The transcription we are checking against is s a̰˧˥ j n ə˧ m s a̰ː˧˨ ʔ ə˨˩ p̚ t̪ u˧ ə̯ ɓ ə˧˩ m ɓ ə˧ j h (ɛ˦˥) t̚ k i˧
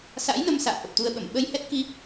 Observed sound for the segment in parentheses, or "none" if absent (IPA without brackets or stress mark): ɛ˦˥